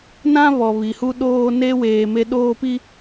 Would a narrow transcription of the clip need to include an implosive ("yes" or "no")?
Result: yes